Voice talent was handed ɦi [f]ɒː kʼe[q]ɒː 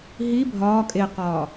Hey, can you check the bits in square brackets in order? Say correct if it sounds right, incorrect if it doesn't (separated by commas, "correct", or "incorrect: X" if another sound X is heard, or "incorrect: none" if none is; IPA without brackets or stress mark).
incorrect: bʱ, correct